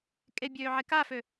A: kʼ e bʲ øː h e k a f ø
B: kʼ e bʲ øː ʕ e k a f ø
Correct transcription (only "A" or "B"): B